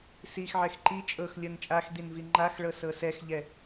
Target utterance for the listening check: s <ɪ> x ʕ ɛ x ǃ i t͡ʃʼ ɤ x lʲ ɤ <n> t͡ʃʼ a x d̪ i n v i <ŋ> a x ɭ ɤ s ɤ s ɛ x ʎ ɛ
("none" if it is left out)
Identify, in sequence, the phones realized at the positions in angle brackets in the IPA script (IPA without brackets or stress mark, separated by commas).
i, n, ŋ͡ǃ